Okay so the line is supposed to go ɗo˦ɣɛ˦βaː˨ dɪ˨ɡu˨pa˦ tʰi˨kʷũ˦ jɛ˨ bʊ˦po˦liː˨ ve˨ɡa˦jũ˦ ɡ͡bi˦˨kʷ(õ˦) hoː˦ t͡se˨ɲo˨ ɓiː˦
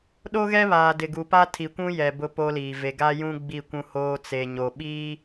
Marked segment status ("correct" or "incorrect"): incorrect